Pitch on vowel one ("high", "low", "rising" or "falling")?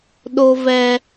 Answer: high